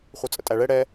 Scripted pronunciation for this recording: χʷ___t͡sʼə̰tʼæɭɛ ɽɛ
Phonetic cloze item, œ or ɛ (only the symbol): œ